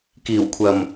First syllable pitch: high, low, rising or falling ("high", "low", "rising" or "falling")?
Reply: low